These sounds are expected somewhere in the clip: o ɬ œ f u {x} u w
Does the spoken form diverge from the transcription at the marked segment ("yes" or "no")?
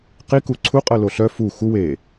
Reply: no